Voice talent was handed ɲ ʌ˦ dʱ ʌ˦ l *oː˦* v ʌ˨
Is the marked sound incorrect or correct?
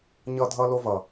incorrect